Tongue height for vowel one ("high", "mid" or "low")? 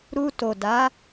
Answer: high